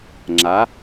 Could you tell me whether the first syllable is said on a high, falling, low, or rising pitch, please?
rising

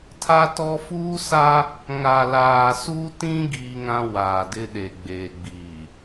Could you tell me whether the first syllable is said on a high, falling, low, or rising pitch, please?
high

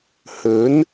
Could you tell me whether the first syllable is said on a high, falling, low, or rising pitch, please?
rising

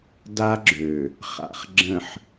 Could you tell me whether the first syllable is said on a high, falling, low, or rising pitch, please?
high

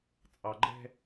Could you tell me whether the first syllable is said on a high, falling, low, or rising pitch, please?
low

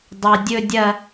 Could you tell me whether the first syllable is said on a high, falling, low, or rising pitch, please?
high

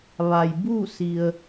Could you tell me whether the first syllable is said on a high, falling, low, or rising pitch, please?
low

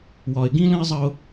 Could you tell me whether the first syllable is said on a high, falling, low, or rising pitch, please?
low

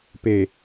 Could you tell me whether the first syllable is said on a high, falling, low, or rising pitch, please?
low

